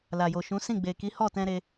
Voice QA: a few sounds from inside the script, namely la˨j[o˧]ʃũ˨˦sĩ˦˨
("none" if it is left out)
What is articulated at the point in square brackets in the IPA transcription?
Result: o˨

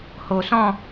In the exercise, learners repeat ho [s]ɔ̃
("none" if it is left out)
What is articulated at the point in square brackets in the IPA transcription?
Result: s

